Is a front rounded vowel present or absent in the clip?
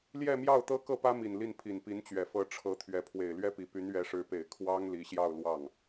present